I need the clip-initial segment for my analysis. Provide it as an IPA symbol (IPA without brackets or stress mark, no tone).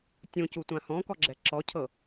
tʲ